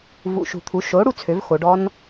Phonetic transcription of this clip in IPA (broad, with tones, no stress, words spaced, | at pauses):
vṵ˨˩ʃṳ˨˩t̪ʰu˩˥ ʃo˩˥ɽu˧ t͡sʰø˩˥vxo˩˧ɖɔ˦˥n